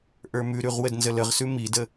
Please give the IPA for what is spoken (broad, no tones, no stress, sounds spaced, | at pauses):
ʔ ə˞ m ʉ ɾ ʉ ʁ w ə d n z ə l ə ʁ s ʉ m i d ə